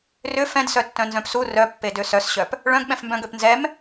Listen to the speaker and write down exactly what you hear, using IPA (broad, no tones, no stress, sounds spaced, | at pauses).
r ʏ f ɛ̃ d s œ tː œ̃ n z œ̃ p s u r œ pː e d ø s œ s ɕ œ p | ɭ œ̃ ɡ ɓ ɛ̃ f m b œ̃ ɡ ø p n z ɛ m